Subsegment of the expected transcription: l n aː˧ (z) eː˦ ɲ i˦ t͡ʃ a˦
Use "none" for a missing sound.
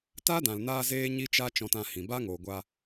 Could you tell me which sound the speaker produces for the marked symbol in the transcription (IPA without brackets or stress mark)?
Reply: z